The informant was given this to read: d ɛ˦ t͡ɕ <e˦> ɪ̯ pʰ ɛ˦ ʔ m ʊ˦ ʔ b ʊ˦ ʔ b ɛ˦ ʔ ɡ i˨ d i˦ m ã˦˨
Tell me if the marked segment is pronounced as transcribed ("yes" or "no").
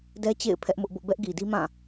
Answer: no